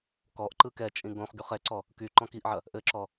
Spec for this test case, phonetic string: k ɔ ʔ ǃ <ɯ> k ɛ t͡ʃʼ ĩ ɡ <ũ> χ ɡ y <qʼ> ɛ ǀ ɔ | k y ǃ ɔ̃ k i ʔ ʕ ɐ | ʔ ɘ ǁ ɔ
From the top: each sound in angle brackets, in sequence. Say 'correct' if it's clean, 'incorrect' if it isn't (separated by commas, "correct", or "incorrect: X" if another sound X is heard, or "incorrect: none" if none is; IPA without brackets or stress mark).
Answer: correct, incorrect: õ, incorrect: χ